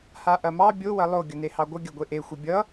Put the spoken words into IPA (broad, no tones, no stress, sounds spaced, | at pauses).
h a ʔ ɐ m ɑ bʲ o w ɐ lˠ o ɡʲ ʌ n e h ɑ ɡʷ ʌ ɡʲ ɐ ɡʷ e ʔ e xʷ ʌ bʲ ʌ